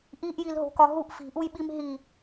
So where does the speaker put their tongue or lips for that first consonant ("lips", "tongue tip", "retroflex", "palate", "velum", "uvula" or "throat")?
throat